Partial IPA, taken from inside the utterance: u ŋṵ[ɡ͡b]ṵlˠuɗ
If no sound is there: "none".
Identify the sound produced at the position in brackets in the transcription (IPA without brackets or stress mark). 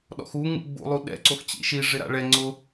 ɡ͡b